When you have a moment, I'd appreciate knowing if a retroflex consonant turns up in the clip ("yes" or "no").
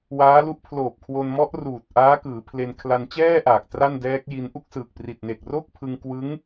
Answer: no